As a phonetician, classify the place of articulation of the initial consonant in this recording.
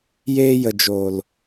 palatal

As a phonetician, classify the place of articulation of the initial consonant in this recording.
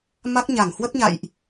labial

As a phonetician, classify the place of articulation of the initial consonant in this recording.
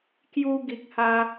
velar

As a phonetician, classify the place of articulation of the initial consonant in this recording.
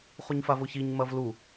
uvular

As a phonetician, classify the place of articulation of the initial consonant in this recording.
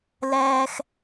alveolar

